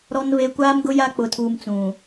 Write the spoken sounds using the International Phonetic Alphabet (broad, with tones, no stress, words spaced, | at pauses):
ɾɔ˨nve˨ kʷaː˦mɡʊ˦ ja˦k͡pʊ˨tʰuː˨m t͡sũ˨